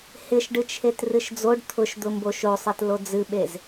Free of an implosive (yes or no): no